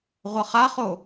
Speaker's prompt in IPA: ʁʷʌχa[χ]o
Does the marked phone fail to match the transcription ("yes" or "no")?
no